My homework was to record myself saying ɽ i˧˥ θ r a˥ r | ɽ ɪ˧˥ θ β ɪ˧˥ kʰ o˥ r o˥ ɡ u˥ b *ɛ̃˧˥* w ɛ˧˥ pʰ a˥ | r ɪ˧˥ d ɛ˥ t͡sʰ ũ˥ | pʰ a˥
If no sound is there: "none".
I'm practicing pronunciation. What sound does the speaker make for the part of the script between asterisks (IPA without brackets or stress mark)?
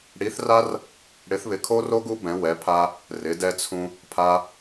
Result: ɛ̃˧˥